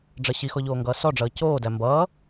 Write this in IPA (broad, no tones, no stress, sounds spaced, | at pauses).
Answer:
ɖ͡ʐ ʌ ɕ i x ɔ ʎ oː ŋ ɡ ʌː s ɔ ɖ͡ʐ ʌː c oː d æ m b ʌː